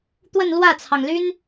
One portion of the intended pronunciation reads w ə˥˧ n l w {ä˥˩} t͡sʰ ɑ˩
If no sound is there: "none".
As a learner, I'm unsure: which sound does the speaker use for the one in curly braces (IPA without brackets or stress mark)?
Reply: ä˥˩